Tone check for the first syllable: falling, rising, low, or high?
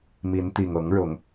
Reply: rising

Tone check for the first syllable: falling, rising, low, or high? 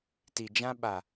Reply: low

